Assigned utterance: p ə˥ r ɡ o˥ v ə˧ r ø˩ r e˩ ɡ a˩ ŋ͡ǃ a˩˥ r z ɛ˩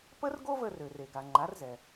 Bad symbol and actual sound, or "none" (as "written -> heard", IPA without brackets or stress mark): none